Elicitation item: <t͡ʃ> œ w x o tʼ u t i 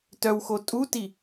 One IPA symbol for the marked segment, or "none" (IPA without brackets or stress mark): t